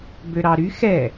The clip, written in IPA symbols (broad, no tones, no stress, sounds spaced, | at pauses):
b ø ɾ ɑ ɾ y x ɛ